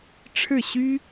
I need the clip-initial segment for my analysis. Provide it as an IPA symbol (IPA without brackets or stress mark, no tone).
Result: ʈ͡ʂʰ